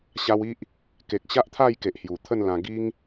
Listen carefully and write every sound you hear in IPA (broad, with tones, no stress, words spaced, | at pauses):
ɕa˧wi˦ʔ | ke˨k̚ɕa˦ʔt̪ʰa˥˧jke˨ʔ hju˨˩t̪ʰə˥˧nlã˧ ɡi˦ŋ